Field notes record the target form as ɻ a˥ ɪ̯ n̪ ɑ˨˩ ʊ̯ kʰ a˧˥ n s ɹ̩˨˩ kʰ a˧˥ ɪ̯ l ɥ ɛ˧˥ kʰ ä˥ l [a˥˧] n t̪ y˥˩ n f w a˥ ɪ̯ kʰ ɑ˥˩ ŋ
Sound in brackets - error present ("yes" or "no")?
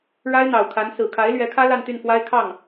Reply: no